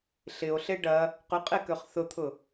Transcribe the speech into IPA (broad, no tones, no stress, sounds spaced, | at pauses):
ɬ ɪ o̯ ɬ e ɖ ɐ | q ʏ qʼ e k ø χ θ ʊ t̪ʰ ʊ